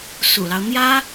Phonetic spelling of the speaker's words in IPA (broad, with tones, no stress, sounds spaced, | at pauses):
s ṵ˨˩ l ɑ˦ ʊ̯ n̪ j ä˥